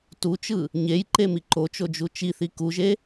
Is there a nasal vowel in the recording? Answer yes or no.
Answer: no